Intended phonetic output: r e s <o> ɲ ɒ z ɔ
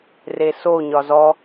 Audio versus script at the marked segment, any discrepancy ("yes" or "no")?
no